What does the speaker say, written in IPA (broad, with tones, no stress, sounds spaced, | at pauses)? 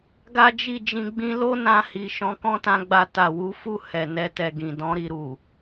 ɡ a˦ d͡ʒ i˦˨ d͡ʒ ĩ˧ ɡ͡b ĩ˦ l o˦ n ã˧ h i˨ ʃ ɔ̃˨˦ k ɔ̃˦ t ã˧ ɡ͡b a˧ t a˨ w u˨˦ f u˦˨ h ɛ˨ n ɛ˧ t ɛ˨ ɡ ĩ˨ d ɔ̃˧ ɾ i˨ ɾ u˨